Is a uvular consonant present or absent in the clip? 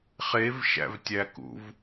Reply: present